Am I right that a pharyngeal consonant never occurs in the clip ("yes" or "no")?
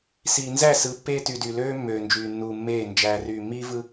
yes